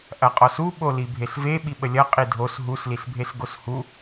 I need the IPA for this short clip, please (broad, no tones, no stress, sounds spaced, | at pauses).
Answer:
ʔ ɐ qʼ ɔ s u ɓ o l i bʱ e s v e ɓ i ɓ ə lʲ ɐ qʼ i dʱ o s ɦ u s l i s bʱ e s ɡ o s h u